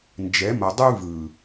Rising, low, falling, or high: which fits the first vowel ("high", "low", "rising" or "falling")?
rising